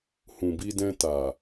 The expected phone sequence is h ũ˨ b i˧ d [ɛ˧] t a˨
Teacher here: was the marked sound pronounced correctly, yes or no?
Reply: no